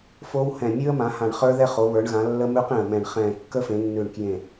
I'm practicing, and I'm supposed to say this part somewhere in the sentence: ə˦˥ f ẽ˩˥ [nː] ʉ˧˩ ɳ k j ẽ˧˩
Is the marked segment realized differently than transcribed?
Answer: no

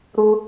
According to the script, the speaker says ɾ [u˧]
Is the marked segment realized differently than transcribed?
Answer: no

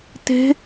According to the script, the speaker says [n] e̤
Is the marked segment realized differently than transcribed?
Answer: yes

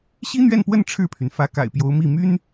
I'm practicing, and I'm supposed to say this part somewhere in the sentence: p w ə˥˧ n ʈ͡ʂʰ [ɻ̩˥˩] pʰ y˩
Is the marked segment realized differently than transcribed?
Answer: no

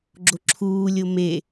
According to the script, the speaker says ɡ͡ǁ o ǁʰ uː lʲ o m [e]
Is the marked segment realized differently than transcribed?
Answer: no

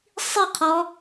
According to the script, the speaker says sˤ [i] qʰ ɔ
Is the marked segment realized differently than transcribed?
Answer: no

